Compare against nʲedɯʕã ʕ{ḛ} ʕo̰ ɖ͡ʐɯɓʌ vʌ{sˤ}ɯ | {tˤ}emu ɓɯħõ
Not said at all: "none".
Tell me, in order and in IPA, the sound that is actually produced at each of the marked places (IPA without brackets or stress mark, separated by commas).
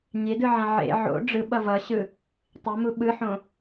ḛ, ɕ, tˤ